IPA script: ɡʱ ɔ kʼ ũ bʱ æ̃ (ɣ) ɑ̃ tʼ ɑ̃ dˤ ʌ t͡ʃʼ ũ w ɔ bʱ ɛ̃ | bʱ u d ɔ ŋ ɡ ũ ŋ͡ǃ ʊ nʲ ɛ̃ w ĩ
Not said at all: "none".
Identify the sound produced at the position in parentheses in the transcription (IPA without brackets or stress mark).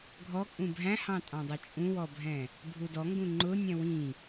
h